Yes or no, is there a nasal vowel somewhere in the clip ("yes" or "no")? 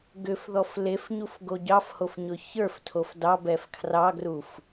no